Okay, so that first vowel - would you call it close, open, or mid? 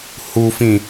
close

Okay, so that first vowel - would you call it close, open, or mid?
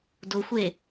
close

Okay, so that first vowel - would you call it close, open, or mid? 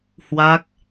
open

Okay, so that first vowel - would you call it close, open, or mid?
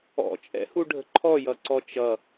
mid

